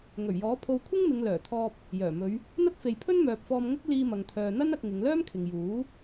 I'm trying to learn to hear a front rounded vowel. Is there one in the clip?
yes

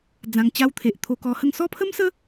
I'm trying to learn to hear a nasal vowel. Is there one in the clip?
yes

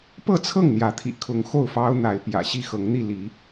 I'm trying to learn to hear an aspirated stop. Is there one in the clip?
yes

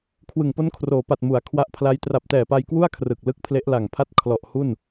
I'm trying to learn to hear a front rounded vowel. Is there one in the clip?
no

